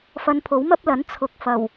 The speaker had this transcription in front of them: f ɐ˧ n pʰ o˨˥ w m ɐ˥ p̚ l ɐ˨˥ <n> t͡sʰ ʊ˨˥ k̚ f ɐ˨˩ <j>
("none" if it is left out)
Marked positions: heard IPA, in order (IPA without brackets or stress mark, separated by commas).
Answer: n, w